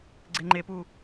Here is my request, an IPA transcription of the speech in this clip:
ɡ͡ǀ e ŋ͡ǃ e p u

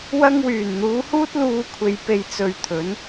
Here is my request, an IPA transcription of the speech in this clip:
w ɐ˧ ŋ w yː˨˩ n n̪ uː˨˧ h uː˥ t̚ l uː˧ kʷʰ e˨ j p e˨ j t͡s ɵ˨ ɥ t̪ʰ ɵ˨˧ n

